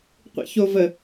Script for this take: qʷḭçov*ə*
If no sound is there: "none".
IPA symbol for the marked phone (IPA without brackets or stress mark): ə